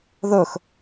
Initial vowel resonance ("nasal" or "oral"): oral